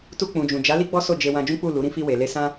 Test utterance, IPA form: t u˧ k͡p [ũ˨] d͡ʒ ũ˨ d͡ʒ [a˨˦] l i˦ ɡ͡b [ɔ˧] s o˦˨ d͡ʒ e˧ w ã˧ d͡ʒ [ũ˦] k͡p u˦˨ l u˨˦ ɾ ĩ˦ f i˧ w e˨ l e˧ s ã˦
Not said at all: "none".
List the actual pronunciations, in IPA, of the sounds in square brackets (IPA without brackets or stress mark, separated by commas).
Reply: ũ˨, a˨˦, ɔ˦, ũ˦